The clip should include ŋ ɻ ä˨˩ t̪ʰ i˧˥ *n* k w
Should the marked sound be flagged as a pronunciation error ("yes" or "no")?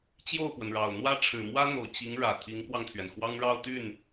yes